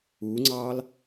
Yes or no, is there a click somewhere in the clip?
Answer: yes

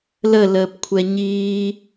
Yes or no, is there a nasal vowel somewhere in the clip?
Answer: no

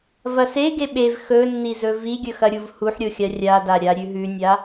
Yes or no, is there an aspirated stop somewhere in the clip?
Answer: no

